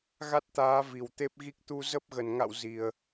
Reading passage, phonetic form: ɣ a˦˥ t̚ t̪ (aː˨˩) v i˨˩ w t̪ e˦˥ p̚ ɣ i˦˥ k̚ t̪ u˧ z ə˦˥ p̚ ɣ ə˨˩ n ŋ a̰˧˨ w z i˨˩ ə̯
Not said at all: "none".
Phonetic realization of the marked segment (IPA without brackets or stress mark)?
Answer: aː˨˦